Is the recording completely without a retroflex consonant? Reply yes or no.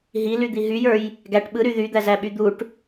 no